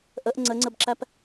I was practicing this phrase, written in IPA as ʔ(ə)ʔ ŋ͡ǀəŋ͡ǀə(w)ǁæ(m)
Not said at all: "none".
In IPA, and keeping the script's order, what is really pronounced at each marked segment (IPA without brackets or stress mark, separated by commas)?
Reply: ə, b, p